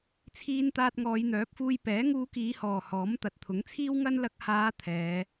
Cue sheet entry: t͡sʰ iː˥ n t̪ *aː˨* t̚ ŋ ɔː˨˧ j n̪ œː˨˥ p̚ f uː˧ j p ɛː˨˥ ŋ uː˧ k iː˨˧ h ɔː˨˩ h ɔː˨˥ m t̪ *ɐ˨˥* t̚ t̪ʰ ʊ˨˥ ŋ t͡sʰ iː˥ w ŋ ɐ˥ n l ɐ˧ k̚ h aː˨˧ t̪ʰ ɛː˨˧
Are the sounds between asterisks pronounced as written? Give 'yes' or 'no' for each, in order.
no, yes

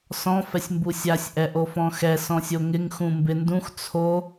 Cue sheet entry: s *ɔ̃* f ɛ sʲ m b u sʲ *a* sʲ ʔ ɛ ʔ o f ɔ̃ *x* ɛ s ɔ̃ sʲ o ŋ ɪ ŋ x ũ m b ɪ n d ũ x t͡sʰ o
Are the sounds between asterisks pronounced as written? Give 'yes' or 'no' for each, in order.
yes, yes, yes

